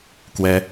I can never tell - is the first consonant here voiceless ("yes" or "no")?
yes